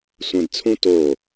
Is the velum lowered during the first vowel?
yes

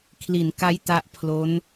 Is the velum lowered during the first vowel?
no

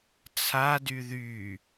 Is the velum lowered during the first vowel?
no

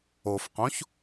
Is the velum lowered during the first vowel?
no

